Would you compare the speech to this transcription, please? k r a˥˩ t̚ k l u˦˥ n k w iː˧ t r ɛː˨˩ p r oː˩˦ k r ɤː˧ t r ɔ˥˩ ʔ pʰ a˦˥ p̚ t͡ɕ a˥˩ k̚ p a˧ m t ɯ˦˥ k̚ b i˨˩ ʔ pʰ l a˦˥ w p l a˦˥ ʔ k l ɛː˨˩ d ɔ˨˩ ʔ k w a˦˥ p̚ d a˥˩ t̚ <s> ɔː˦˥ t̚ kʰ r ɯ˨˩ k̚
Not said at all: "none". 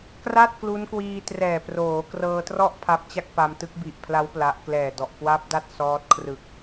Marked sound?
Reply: s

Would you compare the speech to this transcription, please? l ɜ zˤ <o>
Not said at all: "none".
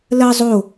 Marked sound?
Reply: o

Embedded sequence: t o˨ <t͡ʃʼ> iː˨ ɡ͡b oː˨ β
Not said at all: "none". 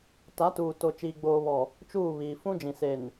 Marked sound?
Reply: t͡ʃ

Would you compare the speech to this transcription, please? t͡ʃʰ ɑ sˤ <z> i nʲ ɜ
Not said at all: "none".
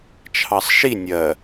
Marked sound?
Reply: ʃ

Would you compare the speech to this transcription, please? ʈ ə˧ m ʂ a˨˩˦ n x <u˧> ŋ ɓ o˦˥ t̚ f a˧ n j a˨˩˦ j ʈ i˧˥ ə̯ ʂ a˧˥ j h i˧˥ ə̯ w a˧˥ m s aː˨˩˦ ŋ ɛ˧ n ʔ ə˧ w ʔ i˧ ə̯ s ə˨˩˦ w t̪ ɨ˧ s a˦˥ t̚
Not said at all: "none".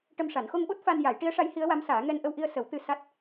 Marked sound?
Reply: o˧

